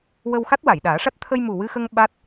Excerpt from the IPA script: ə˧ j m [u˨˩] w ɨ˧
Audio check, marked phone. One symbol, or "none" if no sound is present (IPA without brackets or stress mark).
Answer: u˨˩